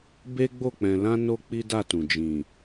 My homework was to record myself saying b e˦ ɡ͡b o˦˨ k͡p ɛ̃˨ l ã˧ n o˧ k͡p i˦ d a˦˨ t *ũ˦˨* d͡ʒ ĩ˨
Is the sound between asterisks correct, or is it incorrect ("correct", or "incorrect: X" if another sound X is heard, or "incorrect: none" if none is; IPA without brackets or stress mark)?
incorrect: ũ˨